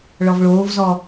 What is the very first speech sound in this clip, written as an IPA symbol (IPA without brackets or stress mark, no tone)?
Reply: ɭ